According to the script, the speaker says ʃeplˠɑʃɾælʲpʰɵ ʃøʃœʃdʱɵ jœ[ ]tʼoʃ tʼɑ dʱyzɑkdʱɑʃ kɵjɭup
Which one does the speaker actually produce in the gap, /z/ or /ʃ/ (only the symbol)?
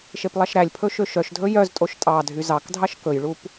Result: z